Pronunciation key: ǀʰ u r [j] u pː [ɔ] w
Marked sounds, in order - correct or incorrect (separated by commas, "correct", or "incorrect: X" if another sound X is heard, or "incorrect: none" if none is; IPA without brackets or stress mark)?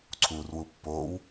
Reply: incorrect: w, incorrect: o